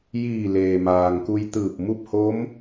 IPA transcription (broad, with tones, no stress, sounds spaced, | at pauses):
j iː˧˩ l eː˩ m aː˩ ŋ k u˧ j t̪ ɯː˧˩ p̚ m u˥˨ p̚ h o˧˥ m